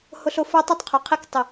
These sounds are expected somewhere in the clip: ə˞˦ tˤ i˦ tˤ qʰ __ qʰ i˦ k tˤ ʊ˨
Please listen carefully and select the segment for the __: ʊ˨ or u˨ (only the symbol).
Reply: u˨